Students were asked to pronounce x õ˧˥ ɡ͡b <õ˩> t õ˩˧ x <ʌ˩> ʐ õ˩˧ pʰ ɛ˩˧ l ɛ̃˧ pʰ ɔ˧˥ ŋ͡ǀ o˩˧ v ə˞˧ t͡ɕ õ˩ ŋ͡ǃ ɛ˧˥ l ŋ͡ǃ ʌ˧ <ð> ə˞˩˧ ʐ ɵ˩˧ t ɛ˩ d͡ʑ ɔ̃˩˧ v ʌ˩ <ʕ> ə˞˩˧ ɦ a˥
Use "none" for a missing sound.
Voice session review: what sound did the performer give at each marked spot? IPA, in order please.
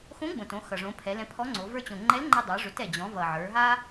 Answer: õ˩, ʌ˩, dˤ, ʕ

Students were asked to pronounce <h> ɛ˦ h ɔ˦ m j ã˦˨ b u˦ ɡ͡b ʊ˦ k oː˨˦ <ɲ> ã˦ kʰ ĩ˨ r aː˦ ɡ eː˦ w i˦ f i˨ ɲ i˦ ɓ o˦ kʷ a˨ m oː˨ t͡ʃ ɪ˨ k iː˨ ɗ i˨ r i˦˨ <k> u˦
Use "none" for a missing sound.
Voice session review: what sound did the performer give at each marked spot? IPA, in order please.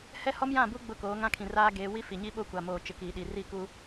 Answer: h, ŋ, k

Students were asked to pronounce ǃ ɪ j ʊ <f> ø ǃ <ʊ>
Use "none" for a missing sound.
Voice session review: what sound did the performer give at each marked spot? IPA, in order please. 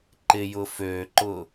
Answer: f, ʊ

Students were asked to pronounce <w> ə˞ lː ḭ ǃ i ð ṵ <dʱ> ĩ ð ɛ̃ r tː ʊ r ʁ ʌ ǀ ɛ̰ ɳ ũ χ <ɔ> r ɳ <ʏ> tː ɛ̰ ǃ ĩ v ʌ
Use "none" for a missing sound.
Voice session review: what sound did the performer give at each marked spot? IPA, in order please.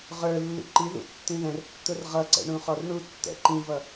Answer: ʁ, tː, ɔ, u

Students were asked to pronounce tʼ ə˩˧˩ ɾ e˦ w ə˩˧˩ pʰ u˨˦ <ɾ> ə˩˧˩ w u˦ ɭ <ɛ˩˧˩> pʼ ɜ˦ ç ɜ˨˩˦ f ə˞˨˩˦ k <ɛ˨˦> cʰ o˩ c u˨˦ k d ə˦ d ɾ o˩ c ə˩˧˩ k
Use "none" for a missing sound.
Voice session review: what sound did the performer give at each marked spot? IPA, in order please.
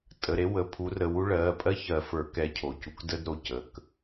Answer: r, ɜ˩˧˩, ɛ˨˦

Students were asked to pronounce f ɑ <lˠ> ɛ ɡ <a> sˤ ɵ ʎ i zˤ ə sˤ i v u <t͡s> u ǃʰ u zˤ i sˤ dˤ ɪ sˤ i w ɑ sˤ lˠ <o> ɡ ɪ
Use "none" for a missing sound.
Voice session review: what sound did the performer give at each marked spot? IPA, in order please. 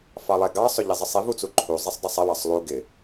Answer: lˠ, ɑ, t͡s, u

